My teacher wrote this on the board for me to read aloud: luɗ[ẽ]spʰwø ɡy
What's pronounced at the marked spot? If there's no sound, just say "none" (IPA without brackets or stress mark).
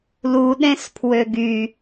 ẽ